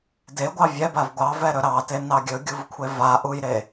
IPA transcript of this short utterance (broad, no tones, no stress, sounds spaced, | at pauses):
d e ɡʷ ɑ vʲ ɛ b a v ɡʷ ɑ v ɛ ɾ ɵ ɾ ɑ t e n ɑ ɡʲ ɵ ɡʲ u v kʷʰ e v a ʔ u j ɾ e